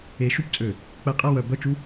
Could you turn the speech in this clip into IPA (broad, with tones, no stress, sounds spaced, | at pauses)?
e˨˦ ʃ u˦ p t͡sʼ ø˧˩˧ | k͡p ɛ˧˩˧ qʼ ɛ˦˨ w œ˧˩˧ b œ˦˨ t͡ʃ u˦